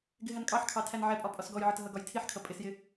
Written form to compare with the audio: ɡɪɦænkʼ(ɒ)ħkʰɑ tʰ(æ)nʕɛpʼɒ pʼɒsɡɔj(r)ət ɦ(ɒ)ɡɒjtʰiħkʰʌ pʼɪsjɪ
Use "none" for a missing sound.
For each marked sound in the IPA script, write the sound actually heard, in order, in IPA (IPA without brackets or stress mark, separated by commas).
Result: ɑ, æ, ʕ, ʌ